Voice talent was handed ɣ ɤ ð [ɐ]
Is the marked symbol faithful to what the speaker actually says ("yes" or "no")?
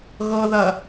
yes